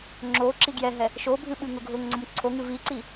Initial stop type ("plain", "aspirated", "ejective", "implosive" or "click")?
click